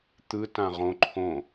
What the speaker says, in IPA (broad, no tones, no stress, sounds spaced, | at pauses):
t̪ ɯ t ã ʁ õ ǃʰ õ